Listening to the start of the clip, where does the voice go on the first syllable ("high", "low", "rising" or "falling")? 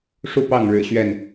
falling